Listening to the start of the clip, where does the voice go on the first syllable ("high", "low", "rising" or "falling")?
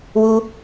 high